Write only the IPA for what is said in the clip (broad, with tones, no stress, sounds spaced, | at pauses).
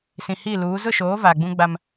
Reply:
s ĩ˨ h i˦˨ l uː˨˦ z ʊ˦˨ ʃ oː˨˦ v aː˨ ɡ͡b ũ˦ ɡ͡b a˦ m